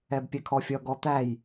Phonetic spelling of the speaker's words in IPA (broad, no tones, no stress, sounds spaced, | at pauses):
ɛ b pʲ ɛ kʰ ɔ fʲ ʌ ɡ ɔ t̪ æ j